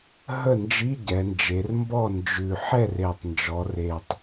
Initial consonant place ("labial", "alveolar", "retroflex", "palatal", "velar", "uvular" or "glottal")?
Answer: glottal